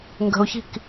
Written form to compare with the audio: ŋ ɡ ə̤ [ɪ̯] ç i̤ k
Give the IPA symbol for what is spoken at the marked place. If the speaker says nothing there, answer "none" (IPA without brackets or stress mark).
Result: ʊ̯